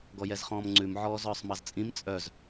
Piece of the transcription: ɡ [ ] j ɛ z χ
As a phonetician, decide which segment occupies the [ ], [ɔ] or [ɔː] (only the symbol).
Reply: ɔ